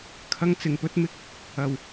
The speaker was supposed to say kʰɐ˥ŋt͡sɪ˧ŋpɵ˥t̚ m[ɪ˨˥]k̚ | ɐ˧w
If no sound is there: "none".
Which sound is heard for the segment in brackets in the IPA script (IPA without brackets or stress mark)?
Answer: ɪ˥